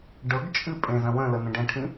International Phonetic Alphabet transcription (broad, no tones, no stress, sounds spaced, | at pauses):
ɖ ɤ ɡ t͡ʃʼ ɨ pʼ ẽ z ə̃ w ə̃ l ə n ə̃ ɖ ə̃ ʈʰ ĩ